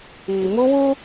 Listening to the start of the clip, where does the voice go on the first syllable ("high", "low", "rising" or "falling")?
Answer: low